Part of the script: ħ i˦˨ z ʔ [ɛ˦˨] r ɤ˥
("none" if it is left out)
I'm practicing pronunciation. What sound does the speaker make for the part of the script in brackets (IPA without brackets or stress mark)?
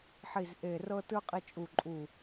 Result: e˦˨